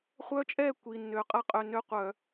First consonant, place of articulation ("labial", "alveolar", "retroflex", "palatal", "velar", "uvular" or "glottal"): uvular